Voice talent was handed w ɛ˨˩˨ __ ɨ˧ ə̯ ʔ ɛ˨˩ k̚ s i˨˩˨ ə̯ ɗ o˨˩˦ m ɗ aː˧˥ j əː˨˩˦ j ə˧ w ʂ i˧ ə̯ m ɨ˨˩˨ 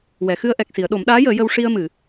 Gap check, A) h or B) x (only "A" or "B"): B